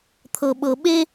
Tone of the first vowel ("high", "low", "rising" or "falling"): low